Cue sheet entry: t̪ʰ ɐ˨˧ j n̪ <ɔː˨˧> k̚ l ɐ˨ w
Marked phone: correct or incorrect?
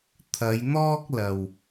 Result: incorrect